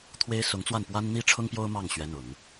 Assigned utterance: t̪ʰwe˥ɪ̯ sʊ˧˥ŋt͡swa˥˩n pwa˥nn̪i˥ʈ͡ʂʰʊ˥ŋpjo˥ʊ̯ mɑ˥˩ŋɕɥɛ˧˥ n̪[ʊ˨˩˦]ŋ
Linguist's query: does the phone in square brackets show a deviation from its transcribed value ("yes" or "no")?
no